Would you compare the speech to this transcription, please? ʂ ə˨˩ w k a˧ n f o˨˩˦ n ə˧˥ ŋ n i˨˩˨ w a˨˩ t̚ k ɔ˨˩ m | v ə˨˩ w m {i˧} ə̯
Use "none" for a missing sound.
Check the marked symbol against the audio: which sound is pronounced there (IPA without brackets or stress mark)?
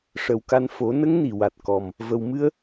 ɨ˧